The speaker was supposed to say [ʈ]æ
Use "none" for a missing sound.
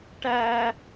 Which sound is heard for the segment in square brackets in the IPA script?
ʈ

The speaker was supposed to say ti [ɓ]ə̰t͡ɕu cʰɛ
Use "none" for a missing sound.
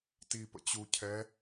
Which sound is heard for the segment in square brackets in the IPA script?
p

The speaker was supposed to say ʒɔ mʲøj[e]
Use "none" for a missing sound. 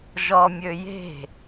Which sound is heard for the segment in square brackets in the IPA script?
e̤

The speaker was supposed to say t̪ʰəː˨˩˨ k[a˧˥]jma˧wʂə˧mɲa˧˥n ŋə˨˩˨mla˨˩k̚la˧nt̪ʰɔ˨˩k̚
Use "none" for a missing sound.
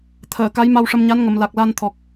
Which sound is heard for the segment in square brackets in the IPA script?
a˧˥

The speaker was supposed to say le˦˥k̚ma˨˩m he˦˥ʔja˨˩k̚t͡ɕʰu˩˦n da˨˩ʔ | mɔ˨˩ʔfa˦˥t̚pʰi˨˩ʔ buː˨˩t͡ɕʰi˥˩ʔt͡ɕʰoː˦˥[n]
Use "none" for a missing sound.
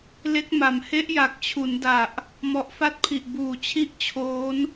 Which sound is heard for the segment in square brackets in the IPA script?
n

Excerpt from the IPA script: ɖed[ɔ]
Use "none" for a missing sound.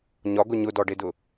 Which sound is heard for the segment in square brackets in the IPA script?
ʊ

